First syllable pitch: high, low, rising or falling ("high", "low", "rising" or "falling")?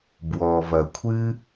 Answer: low